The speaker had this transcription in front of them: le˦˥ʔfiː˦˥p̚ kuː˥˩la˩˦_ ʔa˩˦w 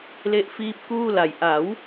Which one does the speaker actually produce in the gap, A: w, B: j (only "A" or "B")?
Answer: B